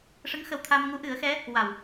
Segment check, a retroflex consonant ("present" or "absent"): present